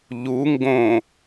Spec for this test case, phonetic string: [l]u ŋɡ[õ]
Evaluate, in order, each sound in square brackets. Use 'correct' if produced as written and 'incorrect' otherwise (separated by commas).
incorrect, correct